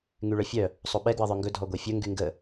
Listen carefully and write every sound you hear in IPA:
ŋyɭœfʲœ | sˤoɓɛ ɡwʌðˤœŋɡɵ dʱɔɡʷɛfʲɵ ŋɡyŋɡə

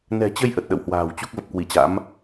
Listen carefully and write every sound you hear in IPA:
nɛ̤˨˩t͡ɕə˧j ʔə˨˩t̚ɗə̰˧˨whwa̤ː˨˩wt͡ɕu˦˥k̚ və˨˩p̚kwi˧˩t͡ɕa̰˧˥m

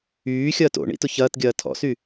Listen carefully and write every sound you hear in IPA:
yːxʲɐːt o̰ɳḭ tʊçɐːtɡʲɐː tʰɔ̰sy

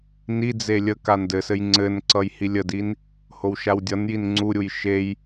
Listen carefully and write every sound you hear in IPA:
nid͡ze lʲə kandɘsɘj ŋ͡ǀɘnǀʌj hilʲədin | howʃawdʲʌnjin ŋ͡ǀuɾʲuj ʃej

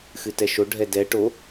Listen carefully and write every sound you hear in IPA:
xɨtɛʃo ɖʱɛdɛ ʈo

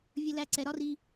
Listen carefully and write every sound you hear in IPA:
vʲə˧læ˧ ǀɛ˨ɾɒ˦ri˧

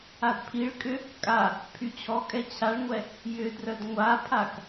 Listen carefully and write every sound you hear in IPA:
adpʰiɭkʼʏ | kʼa | pʰyt͡ɕʰɔkʼɛ t͡ɕʰaɭŋʷɛ | jʏdrœd ŋʷapʰak

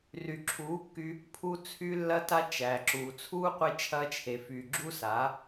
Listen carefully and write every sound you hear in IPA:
ry˨ǁʰuː˨˦kːy˧ | pʰu˧t͡sʰy˧ lːɐ˧ta˧ t͡ʃæ˨ǁuː˨ t͡sʰuː˦ qʷe˧t͡ʃʰɐː˧t͡ʃʰe˨fyː˨ ɡ͡ǁu˦sa˨˦

